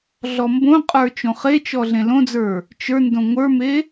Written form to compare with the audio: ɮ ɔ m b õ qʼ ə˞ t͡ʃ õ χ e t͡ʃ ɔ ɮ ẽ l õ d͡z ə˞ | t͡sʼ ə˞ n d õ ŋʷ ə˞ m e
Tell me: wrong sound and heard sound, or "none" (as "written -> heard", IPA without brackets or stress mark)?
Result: t͡sʼ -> t͡ʃ